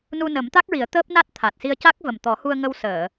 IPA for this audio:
n u˧ n ə˨˩˦ m t̪ a˦˥ k̚ ɹ i˨˩˦ ə̯ t̪ əː˦˥ p̚ n a˦˥ t̚ t̪ʰ a˨˩ t̚ s i˧ ə̯ c a˦˥ k̚ v ə˨˩ m t̪ ɔ˨˩˦ h u˧ ə̯ ŋ ə˧ w s əː˨˩˨

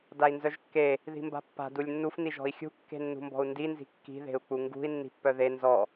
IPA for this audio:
d a i̯ n z œ ʒ kː e | ð i̤ m b a̤ pː a̤ d u lʲ nː u f n i ʒ ɔ̤ i̯ xʲ ṳ kː e̤ nː ṳ m b ɔ̤ u̯ n d i n z i̤ kː i̤ ð e̤ u̯ k͡p u ŋ ɡ ṳ i̯ nː i̤ pː œ ð e n z ɔ

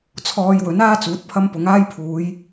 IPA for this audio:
t͡sʰ ɔː˧ j w ɵ˨˥ n aː˥ t͡s uː˨˥ t̚ pʰ ɐ˥ m p ʊ˨˥ ŋ aː˥ j pʰ uː˨˧ j

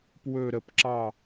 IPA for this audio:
p w ɵ ɾ ə p ǁ ɑ

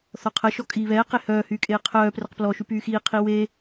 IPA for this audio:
θ ɔ qʰ ə ʃ ɔ kʼ iː β ɛː q e h œː h yː kʼ eː qʰ œː p r ə q p l ɔ ʃ y p yː x iː qʰ i w e

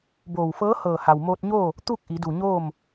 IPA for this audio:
b oː˧˩ w f ɤː˧˥ h ɤː˧˩ h a˩ w m oː˧ t̚ ɲ oː˥˨ | t̪ u˥˨ k̚ ʔ i˩˧ d u˧˩ ɲ oː˥˨ m

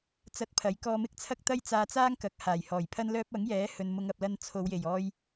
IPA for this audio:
t͡s ɐ˧ t̚ pʰ ɐ˨˥ j k ɔː˧ m ɪ˥ k̚ t͡sʰ ɐ˥ k̚ t̪ ɐ˥ j t͡s aː˧ t͡s aː˥ ŋ k ɐ˨˥ k̚ h aː˨˩ j h ɔː˨˩ j pʰ ɐ˥ n l œː˧ p̚ ɐ˨˥ ŋ j ɛː˨˥ h ɵ˨ n m ʊ˨˧ ŋ ɐ˨ p̚ l ɐ˧ n t͡sʰ o˨˧ w j e˨˩ j ɔː˧ j

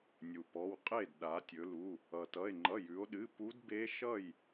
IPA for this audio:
nʲ u˩ p ɔ˩˧˩ w qʼ e˥˩ d ɗ a˩˧ tʲ ɵ˩˧ l u˩˧˩ | ʌ˩ t ʌ˩˧˩ e̯ ŋ͡ǃ ʌ˩˧˩ j ʉ˩˧ o̯ ɗ ɨ˩˧˩ p u˧˥ d b e˧˥ ʃ ʌ˥˩ j

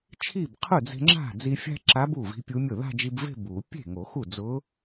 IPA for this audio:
t͡ʃʰ i˥˩ b qʰ ʊ˥˩ d͡z e̤˧ ŋ͡ǁ a̤˥˩ d͡z i˧ fʲ a̤˥ ǁ a˧˥ b u˥˩ v i̤˧˥ pʲ u˧˥ mʲ ʊ˥˩ ð a̤˥˧ d͡ʒ i˧ b v e̤˥˧ b u˨˩˦ pʲ e̤˥˩ ŋ o˨˩˦ x u˥˩ d͡z ʊ˧˥

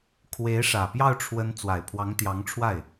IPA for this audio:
kʰ w e˧˥ ɪ̯ ʂ ä˨˩ p j ɑ˥˩ ʊ̯ ʈ͡ʂʰ w ə˧˥ n t͡s w a˨˩ ɪ̯ pʰ w ɑ˧˥ ŋ t̪ j ɑ˧˥ ŋ ʈ͡ʂʰ w a˥˩ ɪ̯

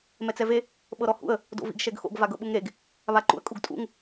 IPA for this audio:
m ɛ t͡s ɛ v e | ɓ ɤ ɾ ɔ h ṵ ə̯ | d o̰ v ḭ ɡ ʃ ɛ ɡ x o̰ ɡ v a ɡ ɤ ɓ u ŋ ɾ e ɡ | β a ǃ ṵ ə̯ kʼ u ɡ tʼ ṵ ŋ

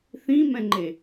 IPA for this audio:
θ ĩ m ɛ̃ ŋ͡ǃ e

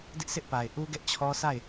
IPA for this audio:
d ɪ˦ ʔ s ɪ˦ ʔ p a˨ ɪ̯ ʔ u˦ ɡ ɛ˦ ʔ t͡ɕʰ ɔ˦ s a˦˨ ɪ̯

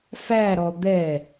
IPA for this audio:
f æ ɾ ɔ d̪ ɛ

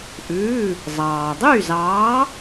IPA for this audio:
ʔ ʉː˩˧˩ | zˤ ɑː˩ dˤ y˥˩ z ɑː˨˥

